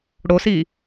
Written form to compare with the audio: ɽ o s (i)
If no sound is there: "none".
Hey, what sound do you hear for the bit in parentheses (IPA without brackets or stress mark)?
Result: i